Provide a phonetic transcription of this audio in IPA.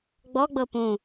ɡ͡b ɔ ɡ͡b ɤ p ũ

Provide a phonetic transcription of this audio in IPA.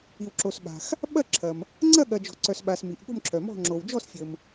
i˨ w ǁ o˨ s ɓ a̤˨ x | ɓ ɐ˥˧ ǁʰ ɐ˨ m | ŋ͡ǀ ɐ˥˧ ɠ ɐ˨ d͡ʒ ɔ̤˨ ǀ œ˨ s ɓ a˨ s m i˨ ʔ ɠ o̤˥˧ m ǁʰ œ˨ m ɔ̤˥˧ ŋ͡ǁ o˨ w d͡ʒ ɔ˥˧ s fʲ ə˨ m

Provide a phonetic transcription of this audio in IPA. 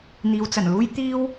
n̪ iː˨ w t͡s ɐ˨˩ n l uː˥ j t̪ iː˥ w

